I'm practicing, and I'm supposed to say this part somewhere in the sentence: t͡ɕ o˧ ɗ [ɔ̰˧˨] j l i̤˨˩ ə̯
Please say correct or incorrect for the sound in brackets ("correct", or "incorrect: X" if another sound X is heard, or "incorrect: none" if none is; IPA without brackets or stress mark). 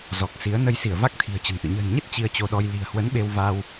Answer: incorrect: ɔ˧